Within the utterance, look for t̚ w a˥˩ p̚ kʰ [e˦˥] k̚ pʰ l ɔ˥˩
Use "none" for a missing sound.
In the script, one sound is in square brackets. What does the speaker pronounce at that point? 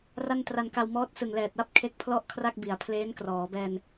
e˦˥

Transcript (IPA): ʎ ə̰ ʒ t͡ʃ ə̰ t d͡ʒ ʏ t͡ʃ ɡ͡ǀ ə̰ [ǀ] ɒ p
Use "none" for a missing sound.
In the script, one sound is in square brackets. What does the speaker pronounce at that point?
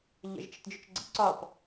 ǀ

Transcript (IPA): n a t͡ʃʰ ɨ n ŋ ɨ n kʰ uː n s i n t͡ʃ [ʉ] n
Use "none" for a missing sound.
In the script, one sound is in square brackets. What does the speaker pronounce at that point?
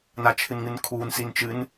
ɨ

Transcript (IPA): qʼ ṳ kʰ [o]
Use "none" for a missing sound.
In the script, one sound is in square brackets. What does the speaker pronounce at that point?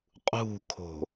o̤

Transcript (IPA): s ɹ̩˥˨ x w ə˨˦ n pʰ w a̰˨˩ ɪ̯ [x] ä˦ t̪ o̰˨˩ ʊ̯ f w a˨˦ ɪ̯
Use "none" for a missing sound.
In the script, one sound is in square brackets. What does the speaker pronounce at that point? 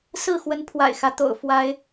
x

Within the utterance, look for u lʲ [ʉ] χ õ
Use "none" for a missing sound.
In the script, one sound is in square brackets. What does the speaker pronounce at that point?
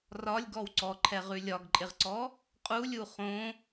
u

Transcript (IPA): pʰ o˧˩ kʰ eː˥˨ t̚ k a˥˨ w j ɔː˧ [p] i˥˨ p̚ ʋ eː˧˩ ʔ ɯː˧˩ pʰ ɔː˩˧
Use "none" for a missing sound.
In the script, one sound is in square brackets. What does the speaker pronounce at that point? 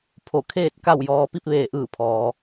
p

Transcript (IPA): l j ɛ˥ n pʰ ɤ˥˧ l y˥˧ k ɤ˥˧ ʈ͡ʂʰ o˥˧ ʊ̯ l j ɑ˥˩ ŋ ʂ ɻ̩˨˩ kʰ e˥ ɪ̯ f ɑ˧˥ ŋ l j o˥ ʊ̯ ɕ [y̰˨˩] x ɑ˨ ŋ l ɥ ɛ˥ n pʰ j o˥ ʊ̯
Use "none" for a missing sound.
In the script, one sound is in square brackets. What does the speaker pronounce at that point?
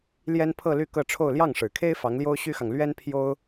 y˥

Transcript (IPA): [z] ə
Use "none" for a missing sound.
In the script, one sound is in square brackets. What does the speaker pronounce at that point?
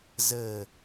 z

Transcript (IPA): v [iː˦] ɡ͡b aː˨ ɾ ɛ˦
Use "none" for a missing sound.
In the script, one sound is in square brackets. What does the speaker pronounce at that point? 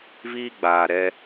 iː˦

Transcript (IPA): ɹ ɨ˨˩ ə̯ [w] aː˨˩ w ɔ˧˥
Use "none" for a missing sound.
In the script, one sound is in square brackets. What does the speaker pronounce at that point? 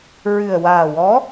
w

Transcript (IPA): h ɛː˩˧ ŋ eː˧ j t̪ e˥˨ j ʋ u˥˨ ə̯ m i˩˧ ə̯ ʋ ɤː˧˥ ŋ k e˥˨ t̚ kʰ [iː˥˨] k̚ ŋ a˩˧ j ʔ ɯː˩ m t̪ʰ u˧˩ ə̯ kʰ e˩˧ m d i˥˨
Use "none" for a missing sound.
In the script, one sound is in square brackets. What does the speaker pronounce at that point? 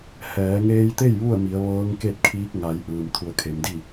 iː˧˥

